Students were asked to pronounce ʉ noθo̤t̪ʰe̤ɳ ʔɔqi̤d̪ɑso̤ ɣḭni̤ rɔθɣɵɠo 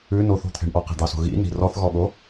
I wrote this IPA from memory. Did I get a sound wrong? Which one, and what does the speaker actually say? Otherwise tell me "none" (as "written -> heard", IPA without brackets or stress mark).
ɵ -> ɔ